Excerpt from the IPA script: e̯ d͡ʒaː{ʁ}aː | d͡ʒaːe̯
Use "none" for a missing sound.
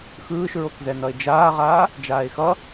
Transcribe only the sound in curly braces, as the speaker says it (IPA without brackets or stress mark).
ʁ